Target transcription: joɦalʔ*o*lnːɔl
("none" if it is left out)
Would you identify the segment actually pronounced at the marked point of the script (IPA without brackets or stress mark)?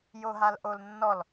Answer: o